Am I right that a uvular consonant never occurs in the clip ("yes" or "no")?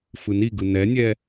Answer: yes